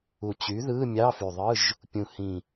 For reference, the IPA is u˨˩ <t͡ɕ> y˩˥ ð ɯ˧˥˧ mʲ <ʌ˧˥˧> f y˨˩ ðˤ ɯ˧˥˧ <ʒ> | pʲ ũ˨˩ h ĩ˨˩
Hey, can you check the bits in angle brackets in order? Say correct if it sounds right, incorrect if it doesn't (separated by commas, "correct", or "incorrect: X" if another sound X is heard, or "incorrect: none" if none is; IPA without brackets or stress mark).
correct, incorrect: ɑ˧˥˧, correct